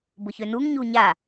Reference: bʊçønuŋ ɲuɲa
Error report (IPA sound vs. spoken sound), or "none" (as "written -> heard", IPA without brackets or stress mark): none